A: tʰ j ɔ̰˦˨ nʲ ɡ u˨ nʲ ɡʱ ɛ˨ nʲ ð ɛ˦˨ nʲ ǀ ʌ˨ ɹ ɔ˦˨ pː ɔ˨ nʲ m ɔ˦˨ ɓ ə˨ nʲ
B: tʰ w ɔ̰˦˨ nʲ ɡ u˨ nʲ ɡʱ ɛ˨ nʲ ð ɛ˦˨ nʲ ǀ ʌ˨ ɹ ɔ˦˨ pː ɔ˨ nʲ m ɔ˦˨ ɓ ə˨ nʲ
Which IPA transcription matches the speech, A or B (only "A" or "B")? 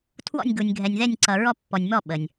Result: B